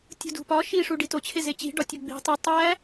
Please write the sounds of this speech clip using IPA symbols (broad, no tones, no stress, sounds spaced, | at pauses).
tʲ ṳ d ṳ p ɒ ʃ i ʂ u ɖ i t o t͡ɕʰ e z e t͡ɕ i̤ ɖ ɒ tʲ o ɡ͡b i̤ tˤ u tˤ æ